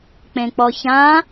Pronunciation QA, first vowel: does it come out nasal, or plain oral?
nasal